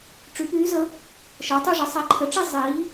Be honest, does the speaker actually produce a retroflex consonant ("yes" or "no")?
yes